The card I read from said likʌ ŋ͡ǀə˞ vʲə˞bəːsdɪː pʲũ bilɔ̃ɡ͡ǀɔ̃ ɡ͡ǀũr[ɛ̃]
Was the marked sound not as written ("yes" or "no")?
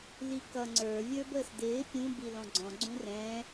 no